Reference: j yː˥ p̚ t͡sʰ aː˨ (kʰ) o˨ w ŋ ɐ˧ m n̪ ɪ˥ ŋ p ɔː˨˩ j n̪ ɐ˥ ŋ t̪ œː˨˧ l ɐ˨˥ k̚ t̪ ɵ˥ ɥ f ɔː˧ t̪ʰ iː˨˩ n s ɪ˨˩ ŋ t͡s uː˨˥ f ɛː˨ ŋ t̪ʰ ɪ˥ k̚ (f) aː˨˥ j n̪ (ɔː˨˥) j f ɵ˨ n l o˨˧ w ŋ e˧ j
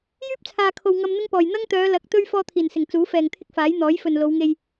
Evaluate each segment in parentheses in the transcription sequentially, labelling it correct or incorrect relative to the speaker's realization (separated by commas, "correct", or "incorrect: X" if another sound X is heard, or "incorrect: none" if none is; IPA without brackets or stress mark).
correct, correct, correct